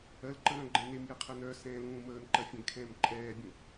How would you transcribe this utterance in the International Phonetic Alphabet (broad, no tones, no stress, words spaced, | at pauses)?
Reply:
ɜlǃə ɾœ̃ɡ͡ǃɛ̃nemjɛ qʰɜnœsɛ̃ː lũːməːnǃɜ fʲɛ̃ɡkʰɛ̃ːm ǃʼɛːbʲũ